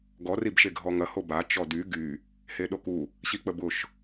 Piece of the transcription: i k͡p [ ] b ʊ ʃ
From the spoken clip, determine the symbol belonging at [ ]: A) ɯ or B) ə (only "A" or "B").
B